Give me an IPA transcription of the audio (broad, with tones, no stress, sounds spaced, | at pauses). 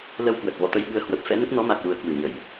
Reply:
l ə˧ w k w ə˨˩ t̚ v ɔ̰˧˨ t̪ ə˧ j ɓ ɨ˧ ə̯ h w ə˨˩ p̚ f ɛ̰˧˥ n ə˦˥ t̚ n ɔ˨˦ m a˨˩ k̚ l u˨˩ ə̯ k w ɨ˧˩ ɲ ə˧˩˨ j